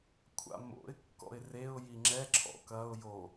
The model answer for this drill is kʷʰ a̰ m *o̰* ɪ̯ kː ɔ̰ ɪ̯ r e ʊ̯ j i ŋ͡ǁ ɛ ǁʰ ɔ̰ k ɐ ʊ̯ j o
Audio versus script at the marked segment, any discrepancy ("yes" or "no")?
no